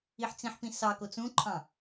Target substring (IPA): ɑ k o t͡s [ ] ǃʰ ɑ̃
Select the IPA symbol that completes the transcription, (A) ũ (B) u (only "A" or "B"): A